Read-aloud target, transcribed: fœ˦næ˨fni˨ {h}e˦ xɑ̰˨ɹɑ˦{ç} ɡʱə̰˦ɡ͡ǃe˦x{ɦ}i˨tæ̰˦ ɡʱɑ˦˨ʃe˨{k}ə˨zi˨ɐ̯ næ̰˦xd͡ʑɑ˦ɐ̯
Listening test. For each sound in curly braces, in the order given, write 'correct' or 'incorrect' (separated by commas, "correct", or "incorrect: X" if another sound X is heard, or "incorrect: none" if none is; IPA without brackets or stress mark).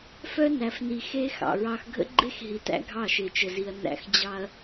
incorrect: x, incorrect: x, correct, incorrect: t͡ʃ